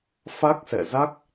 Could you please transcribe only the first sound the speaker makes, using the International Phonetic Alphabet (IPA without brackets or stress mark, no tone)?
f